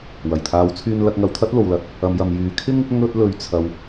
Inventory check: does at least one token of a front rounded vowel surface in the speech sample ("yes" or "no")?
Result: yes